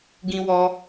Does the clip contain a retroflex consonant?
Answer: no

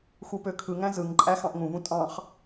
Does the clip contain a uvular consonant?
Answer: yes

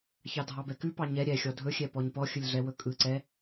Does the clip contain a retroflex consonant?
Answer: no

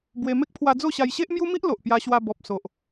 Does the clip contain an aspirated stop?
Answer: yes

